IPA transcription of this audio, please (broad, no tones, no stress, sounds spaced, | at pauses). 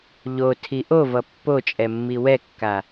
ʎ o tʰ i ʔ o v ʌ pː o t͡ʃʼ ɛ mː i w ɛ kː a